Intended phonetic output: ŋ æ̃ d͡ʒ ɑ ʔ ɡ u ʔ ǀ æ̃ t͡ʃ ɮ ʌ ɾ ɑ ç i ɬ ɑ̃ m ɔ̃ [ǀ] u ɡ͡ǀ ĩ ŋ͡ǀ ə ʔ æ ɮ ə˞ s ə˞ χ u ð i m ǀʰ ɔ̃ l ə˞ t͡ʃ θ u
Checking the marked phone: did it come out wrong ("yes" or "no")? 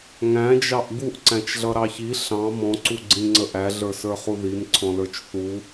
no